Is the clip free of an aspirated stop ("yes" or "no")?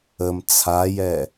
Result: no